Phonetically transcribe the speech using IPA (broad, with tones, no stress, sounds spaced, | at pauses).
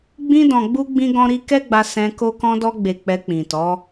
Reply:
ɡ͡b ĩ˧ d ɔ̃˨ ɡ͡b u˧ ɡ͡b ĩ˧ ɡ ɔ̃˧ ɾ i˧ k ɛ˦ ɡ͡b a˧ s ɛ̃˧ k o˧ k ɔ̃˧ d ɔ˧ ɡ͡b e˨ k͡p ɛ˧ k͡p ĩ˨ t ɔ˨˦